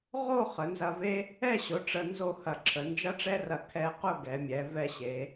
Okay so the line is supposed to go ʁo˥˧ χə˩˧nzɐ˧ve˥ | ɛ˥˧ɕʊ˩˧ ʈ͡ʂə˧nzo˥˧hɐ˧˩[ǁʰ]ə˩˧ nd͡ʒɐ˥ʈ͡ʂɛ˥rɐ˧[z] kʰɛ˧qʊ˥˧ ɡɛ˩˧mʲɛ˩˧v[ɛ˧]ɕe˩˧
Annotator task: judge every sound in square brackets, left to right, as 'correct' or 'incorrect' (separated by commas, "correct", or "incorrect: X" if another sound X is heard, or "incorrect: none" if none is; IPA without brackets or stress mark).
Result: correct, incorrect: none, incorrect: ɛ˥˧